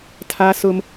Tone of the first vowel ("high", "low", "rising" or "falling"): high